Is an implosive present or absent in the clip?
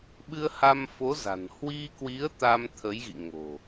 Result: present